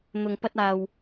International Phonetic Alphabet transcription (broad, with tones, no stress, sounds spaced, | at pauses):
n̪ ʊ˨ ŋ p ɐ˧ t̚ aː˨ w